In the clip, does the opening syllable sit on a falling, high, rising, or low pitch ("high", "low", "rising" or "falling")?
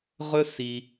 high